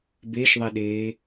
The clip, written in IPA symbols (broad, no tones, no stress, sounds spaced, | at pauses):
b e ʃ ðˤ e ɗ eː